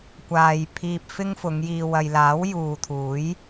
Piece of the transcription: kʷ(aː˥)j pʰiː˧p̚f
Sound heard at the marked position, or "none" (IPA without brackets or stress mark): aː˨